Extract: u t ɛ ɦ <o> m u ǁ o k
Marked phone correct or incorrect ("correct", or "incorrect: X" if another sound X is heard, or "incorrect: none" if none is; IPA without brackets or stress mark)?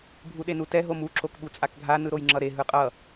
correct